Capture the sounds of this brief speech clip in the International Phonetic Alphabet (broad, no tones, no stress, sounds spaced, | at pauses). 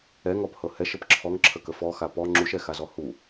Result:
ɛ ŋ ɔ p h ɤ h ɛ ʃ ə p ǁʰ ɔ ŋ ǁʰ ə k ə f ɔ x a p ɔ ŋ͡ǁ u ʃ ɛ x a z ɔ h u